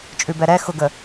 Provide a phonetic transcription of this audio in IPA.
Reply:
t͡ʃʼ ʉ b ɛ ɾ ɛ x ʊ ɡ ə

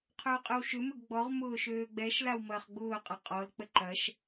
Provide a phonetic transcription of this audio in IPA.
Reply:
qʰ ʏː qʼ ʏ w ʃ ʏ m ʏ ɡ ɡ͡b ɔ ʁ m ʊː ʃ øː ɡ͡b ɛ ʃ l a w m ɐː χ ɡ͡b ʊː qʼ ɐ qʼ ɔ l k͡p ə ǃ ɐ ʃ

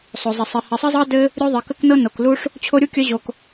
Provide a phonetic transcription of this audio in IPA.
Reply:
sˤ o˧ zˤ ə˧ sˤ ɘ˧ h ɘ˧ sˤ ə˦ zˤ ɤ˦ d ɘ˦ | ɾʲ u˦ ðˤ ɘ˧ k ə˦ k n ɤ˦ n o˧ k l u˦ ʂ | t͡ɕʰ o˦ ɾʲ u˦ kʲ œ˦ ʑ o˧ k

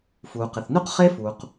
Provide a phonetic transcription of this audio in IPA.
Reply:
f uː˩ q ɪ˩ θ n u˥ q χ e˥ f uː˩ q

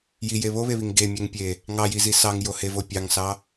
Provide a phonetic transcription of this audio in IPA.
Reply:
j i j e β o β e β i ŋ ɡ e mʲ ɛ ŋ pʲ e | ŋ ɑ j i z i s ɑ ŋ j o h e v o pʲ ɑ ŋ s ɑ

